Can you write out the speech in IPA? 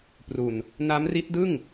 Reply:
p r u˨˩ n | n a˦˥ m r i˦˥ t̚ d ɯ˥˩ ŋ

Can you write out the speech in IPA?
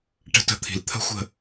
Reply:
ʈ ə̤˦ t ə̤˦˨ t̪ʰ i̤˨ l t̪ʰ ə̤˦ xʷ ə̤˦˨

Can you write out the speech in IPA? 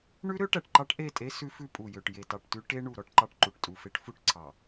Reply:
ɳ ʉ˦ ɾ ø˦ ʈ æ˨ ʈ ǃ ɑ˦ ʈ ʔ e˦˨ tʼ e˦ s ʉ˦ f ʉ˦ pʼ u˨ j ø˨ ʈ j e˨ t ɑ˨ ʈ t ʉ˦ ʈ e˦ ɳ u˨ ɾ ɔ˦ ʈ ǃ ɑ˦ ʈ ǃ u˨ ʈ tʼ u˨ f e˦ ʈ f u˦ ʈ ǀʰ ɑ˨

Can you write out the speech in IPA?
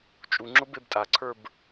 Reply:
t͡ʃʼ u ŋ͡ǁ ʊ b e b tʼ a ǀʰ ə˞ b

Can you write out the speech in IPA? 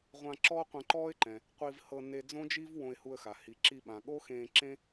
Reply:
ʁʷ ã˧ ǁ ɔː˥ qʷ ɛ̃˧ ǃ ɔː˥ ɪ̯ ǃ ɛ̃˩ | qʷ i˧ v h ɤ˧ n e˧ d͡z õ˥ d͡ʒ i˥ v w õ˧ ɪ̯ h u˧ ə̯ x a˩ h i˩ ǁ i˧ ɓ ã˩ ɠ o˥ x ẽː˧ ǁ ẽ˥

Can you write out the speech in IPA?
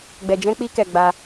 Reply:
ɡ͡b ɛ˨ d͡ʒ ɛ̃˧ k͡p i˧ k ɛ˨ ɡ͡b a˧

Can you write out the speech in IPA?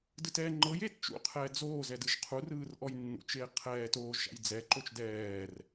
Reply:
d ɯ t ɛː ŋ͡ǃ ɤ j eː t t͡ʃ ṵ qʰ ɛː d͡z oː z ɛ d ɯ ʒ qʰ u r ɯː r ʔ ɔ j nː ṵ t͡ʃ eː qʰ ɛː t oː ʒ ʃ a̰ j d͡z ɛ ǃ o t͡ʃ d ɛː r

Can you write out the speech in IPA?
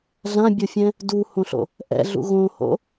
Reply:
ɮ ã bʲ o fʲ ɛ̃ | d u h õ ɬ o̰ | ʔ ɛ̰ ɮ ṵ ɣ õ h o̰

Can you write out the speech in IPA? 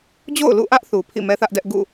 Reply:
d͡ʑ o̰˦˨ ʊ̯ l ṵ˦˨ ʔ ä˦ ʔ θ u˨ pʰ ḭ˦˨ m ɛ˦ θ ä˦ ʔ d ɛ˦ ʔ ɡ ṵ˦˨

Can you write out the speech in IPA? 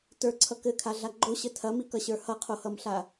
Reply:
t ə˞ ǀʰ ʌ k ɘ kʰ a ɮ a ɡ͡ǃ o ɕ ɘ tʰ ɐ m i k ʌ ɕ ə˞ h ʌ qʰ o h ʌ m ɬ a

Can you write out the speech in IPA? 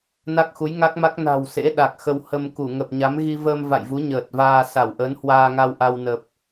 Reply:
n a˦˥ k̚ x u˨˦ j ŋ a˦˥ k̚ m a˦˥ k̚ n a̤˨˩ w s ḛ˧˥ ɗ a˨˩ k̚ x ə˧ w h ə˧ m k u˧˩ ŋ ə˨˩ p̚ ɲ a˨˦ m ɣ i˧ v əː˧ m v a̰˧˨ j v u˨˦ ɲ əː˨˩ t̚ v aː˧ s a˧˩ w ʔ ə˨˦ n h w aː˧ ŋ a˧ w ʔ a˧ w n ə˨˩ p̚

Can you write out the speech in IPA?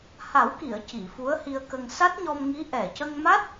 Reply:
h a˨˩˦ w k i˨˩˨ ə̯ c i˨˩˨ f u˧˥ ə̯ h i˧ ə̯ k ə˧ ŋ s a˦˥ t̚ ɲ ɔ˧ m ŋ i˧˥ ʔ ɛ˨˩ c ə˧ ŋ m a˦˥ t̚

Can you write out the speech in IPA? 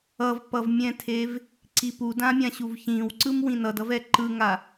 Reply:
ʌ v p ʌ v mʲ ɛ̃ tʰ e v | ǀ i p u d ã mʲ ã ɕ u v ç ĩ w ǀ ɯ m w ĩ n ʌ d ʌ v ɛ ǃ ɯ ŋ a

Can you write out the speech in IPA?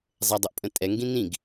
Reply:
zˤ ɛ dˤ o ʔ pʼ ə̃ tʼ ɛ ŋ ɡ ĩ n̪ ĩ ɡ

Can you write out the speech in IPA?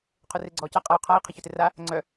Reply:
qʰ ʊ r e ɡ͡ǀ ɔː c a qʼ a y̯ qʰ a i̯ qʰ ɪ ç œ t ɪ r a | ŋ͡ǀ œ

